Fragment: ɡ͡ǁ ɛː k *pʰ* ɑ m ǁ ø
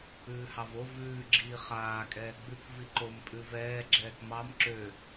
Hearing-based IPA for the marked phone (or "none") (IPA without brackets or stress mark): m